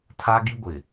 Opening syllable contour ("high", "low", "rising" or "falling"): high